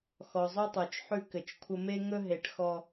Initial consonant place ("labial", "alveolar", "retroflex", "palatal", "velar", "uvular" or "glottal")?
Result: velar